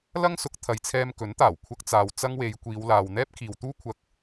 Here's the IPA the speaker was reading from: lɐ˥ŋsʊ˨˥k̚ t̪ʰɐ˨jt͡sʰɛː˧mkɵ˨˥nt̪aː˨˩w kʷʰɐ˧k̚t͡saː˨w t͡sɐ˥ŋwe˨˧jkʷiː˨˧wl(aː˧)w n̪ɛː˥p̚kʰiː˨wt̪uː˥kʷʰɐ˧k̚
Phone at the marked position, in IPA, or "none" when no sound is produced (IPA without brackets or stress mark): aː˨